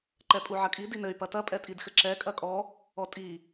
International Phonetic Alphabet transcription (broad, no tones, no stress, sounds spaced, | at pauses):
ǃ ɛ pʼ u ʕ ɐ kʼ i d i n ɘ y̯ p ɐ t ɐ pʼ ɛ tʼ i d x ɘ ǁ ɛ kʼ ɐ kʼ ɔ | ɔ tʼ i